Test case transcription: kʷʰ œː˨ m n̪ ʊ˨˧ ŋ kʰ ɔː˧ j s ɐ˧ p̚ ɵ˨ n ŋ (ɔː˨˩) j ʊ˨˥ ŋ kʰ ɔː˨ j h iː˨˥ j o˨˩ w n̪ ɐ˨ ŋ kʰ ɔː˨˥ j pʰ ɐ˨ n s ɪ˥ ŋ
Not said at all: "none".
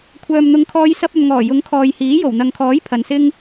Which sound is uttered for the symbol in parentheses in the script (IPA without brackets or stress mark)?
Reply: ɔː˨˩